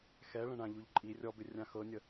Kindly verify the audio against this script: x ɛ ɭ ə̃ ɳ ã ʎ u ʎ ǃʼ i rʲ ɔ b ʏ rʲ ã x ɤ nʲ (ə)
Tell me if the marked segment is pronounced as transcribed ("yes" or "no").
yes